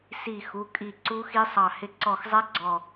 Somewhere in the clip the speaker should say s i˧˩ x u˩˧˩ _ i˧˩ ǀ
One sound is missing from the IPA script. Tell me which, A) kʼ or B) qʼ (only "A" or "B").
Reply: A